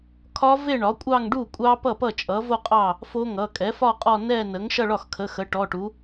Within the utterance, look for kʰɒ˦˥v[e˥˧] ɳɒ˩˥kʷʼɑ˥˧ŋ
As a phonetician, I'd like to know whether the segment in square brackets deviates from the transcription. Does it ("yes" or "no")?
no